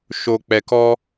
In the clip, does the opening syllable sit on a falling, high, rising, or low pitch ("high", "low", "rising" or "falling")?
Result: low